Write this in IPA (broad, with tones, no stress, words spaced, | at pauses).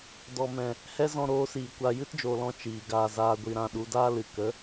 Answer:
dɔ˨mɛ̃˨ | hɛ˦zɔ̃˧ ɾoː˨˦siː˨kʷa˧ jɨ˦td͡ʒoː˨lɔ̃˧ t͡ʃiː˨ ɡaː˨ zaː˧ɡʷi˧ ɾã˧ɗu˨˦ daː˦ lɨ˨ kə˨˦